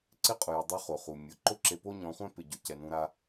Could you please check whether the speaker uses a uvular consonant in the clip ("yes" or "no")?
yes